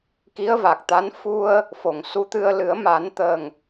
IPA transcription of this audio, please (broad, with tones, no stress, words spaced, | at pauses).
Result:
ki˧˥ə̯va˨˩k̚t̪a˧˥n fu˧ə̯ | fo˨˩ŋ su˧˥t̪ɨ˧ə̯ lɨ˨˩˦ə̯ma˨˩˦nt̪ə˨˩ŋ